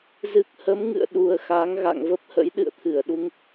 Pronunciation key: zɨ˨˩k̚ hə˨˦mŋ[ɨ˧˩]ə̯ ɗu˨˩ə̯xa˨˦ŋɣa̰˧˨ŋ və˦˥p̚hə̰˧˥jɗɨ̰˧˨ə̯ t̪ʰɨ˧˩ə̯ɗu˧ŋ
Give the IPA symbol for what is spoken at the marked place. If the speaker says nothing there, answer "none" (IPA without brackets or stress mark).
ɨ̰˧˨